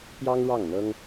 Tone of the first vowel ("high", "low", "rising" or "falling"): high